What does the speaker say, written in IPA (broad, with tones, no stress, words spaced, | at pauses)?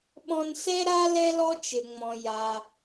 ɓɔ̃˧nsɛ˥ ɾa˥ lɛ˥lɔ˥ t͡ʃɘ˩ŋ͡mɔ̃˩ ja˩